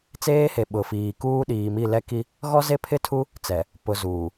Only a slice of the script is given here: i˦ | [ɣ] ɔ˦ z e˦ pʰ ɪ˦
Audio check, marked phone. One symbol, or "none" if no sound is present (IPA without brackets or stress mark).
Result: ɣ